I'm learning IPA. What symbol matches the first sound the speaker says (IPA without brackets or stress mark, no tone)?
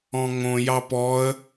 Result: ɔ̃